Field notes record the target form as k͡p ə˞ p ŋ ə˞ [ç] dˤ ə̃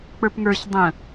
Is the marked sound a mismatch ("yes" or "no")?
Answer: no